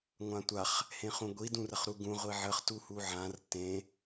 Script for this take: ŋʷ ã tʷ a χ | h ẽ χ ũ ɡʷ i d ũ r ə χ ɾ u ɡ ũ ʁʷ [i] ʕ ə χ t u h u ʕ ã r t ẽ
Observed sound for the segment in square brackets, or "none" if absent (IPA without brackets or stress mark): i